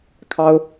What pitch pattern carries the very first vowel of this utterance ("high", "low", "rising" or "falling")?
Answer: high